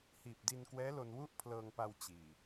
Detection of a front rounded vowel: absent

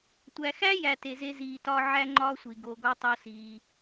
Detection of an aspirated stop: absent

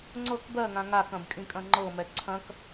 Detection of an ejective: present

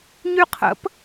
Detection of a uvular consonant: present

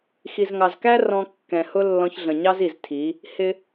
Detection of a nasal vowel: present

